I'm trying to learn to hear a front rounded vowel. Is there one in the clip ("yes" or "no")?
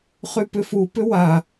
yes